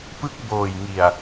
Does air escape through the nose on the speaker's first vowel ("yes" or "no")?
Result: no